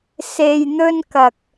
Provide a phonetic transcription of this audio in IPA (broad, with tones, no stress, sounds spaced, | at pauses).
s e˨ j n̪ ɵ˧ n k ɐ˨ k̚